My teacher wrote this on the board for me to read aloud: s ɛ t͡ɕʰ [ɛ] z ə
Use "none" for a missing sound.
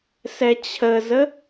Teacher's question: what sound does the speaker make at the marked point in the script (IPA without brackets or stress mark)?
ə